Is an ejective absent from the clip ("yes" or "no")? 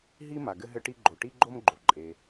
no